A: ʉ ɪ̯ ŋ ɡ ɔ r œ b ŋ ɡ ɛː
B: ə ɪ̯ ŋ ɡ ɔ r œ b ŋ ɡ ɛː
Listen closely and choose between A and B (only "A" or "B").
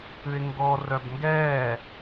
A